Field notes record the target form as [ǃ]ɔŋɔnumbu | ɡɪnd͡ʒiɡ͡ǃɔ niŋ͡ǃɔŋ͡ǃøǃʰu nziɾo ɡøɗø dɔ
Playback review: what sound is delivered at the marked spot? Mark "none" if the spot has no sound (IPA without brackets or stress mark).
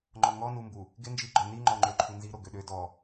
ŋ͡ǃ